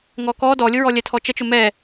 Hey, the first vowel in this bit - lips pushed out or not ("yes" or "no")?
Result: yes